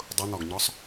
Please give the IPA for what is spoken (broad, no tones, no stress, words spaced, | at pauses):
dˤʊn̪ɒɡɲɒsˤ